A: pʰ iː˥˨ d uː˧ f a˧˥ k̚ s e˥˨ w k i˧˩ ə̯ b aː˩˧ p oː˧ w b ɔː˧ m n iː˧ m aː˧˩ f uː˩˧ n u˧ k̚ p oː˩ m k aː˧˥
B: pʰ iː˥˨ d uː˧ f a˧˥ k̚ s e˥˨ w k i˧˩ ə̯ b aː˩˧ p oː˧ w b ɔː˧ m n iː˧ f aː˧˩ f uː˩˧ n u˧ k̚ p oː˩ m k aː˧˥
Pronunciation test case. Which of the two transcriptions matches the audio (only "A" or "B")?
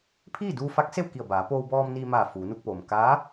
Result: A